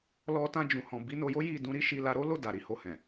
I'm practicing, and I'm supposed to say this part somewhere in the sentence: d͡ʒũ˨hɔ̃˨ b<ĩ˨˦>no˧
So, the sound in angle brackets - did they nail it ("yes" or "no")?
no